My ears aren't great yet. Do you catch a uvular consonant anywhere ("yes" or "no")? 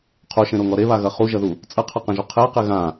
yes